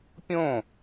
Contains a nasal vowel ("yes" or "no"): yes